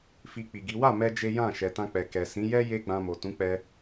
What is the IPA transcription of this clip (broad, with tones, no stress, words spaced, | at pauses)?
fi˧k͡pi˨ɡi˨˦ wa˦˨mɛ˧ d͡ʒe˦ jã˦˨ ʃɛ˨tã˧k͡pɛ˨ kɛ˨sĩ˨˦ jɛ˦ je˦ɡ͡bã˧mo˨ tũ˨˦k͡pɛ˧